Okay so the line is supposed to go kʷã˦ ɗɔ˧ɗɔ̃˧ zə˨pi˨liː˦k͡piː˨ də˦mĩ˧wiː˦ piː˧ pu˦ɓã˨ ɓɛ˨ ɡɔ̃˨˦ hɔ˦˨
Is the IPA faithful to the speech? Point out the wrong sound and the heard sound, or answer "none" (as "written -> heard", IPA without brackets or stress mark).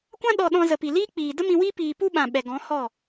none